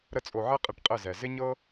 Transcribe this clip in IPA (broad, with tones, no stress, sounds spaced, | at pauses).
ɾ ə˧ t͡sʼ o˨ ʕ ɛ˦ qʼ ɘ˧ ʈ qʼ ɘ˦˨ z ɛ˨ z ɪ˦ ɲ ɤ˦